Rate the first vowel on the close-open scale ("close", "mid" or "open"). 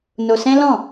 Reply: mid